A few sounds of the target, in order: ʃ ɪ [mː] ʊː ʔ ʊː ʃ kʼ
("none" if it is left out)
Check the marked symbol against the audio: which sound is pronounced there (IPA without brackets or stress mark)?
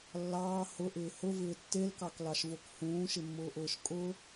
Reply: mː